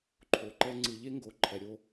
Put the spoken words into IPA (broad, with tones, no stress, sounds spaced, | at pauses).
ǃʰ o˨ ǃ ɛ˦ ŋ͡ǀ ɯ˨ ʎ e˦ ŋ ɡ o˨ ǃʰ ɛ˨ ɾʲ o˦